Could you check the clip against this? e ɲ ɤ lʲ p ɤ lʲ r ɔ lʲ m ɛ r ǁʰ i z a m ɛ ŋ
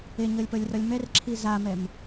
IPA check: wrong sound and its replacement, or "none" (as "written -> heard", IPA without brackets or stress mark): ŋ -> m